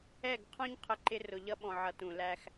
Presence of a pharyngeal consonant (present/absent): present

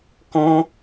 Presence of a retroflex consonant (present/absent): absent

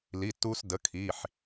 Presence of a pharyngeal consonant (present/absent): present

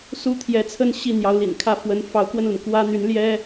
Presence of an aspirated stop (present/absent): present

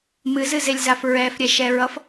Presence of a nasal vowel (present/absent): absent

